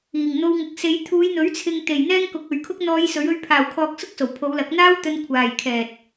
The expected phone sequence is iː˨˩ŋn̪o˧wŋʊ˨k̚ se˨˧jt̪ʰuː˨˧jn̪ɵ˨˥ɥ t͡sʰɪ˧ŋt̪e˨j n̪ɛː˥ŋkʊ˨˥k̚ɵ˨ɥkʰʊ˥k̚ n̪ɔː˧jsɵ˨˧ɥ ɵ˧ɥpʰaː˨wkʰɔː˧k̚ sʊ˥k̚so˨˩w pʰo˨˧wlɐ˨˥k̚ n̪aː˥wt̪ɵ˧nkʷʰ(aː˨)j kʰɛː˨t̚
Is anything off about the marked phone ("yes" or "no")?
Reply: no